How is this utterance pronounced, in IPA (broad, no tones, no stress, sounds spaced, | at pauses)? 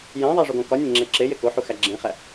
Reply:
j æ̃ ðˤ æ ʐ o ɡ õ k ɒ nʲ ẽ ŋ͡ǁ e ǁ e j e k o ħ u x æ ɡ͡ǁ ẽ χ æ